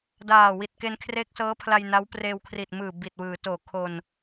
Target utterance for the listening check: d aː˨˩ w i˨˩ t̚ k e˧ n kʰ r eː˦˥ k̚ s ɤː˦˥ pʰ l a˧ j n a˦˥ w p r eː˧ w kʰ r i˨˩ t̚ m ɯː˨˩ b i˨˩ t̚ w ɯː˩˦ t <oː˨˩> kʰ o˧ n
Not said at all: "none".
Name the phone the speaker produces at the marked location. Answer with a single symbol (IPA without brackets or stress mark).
oː˨˩